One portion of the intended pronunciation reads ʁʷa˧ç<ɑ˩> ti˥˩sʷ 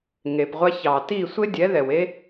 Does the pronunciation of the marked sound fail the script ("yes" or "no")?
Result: no